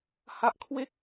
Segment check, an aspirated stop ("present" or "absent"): present